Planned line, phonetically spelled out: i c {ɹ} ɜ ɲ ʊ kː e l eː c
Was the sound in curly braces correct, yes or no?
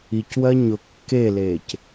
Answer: no